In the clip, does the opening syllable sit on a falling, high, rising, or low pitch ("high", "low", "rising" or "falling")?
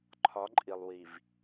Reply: rising